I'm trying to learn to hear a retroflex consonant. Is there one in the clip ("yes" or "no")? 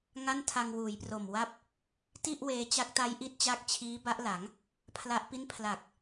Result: no